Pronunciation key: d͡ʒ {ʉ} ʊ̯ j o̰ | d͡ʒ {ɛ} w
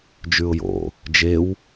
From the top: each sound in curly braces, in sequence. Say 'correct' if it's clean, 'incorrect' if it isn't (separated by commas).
correct, incorrect